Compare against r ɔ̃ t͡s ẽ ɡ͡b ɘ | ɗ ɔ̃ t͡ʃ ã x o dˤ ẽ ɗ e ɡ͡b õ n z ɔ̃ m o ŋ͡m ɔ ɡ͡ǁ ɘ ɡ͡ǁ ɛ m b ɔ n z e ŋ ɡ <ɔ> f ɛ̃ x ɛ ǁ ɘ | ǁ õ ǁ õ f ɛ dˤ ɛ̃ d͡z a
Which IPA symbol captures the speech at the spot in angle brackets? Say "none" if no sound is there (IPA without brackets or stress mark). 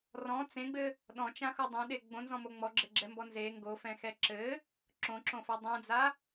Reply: o